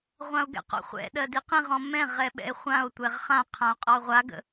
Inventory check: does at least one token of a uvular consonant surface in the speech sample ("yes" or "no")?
yes